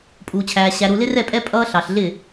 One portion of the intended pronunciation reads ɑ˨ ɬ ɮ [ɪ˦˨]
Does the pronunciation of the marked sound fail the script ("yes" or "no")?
no